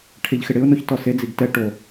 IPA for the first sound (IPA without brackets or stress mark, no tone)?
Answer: ʈʰ